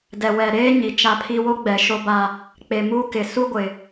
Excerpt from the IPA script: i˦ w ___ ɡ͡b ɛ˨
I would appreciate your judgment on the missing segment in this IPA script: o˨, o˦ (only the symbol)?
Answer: o˦